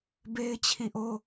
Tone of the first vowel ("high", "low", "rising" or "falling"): high